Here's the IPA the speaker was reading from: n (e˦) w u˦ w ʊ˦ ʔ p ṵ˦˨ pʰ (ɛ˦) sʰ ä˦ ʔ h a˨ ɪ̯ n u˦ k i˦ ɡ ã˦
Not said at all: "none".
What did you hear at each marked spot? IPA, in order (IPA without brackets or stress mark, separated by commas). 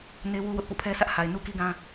e˦, ɛ˦